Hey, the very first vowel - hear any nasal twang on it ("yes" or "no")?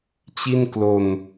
no